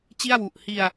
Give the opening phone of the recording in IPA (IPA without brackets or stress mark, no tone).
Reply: t͡ɕ